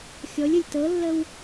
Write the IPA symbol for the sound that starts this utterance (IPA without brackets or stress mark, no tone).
xʲ